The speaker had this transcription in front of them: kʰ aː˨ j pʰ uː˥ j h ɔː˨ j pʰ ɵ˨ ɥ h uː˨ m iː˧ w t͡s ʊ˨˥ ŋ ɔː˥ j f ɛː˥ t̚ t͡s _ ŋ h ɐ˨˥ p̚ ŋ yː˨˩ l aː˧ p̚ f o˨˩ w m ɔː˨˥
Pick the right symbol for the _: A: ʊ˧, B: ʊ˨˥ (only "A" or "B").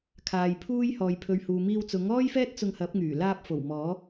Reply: A